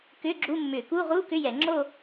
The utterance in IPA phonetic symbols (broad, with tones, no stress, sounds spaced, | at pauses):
k ʏː˧˥˧ ɡ͡ǁ u˧˥˧ mː ʏː˧˩˧ k uː˧˥˧ ʁ uː˧˥˧ k ʏ˧˥˧ j ɛ˧˩˧ ŋ͡ǁ o˥˧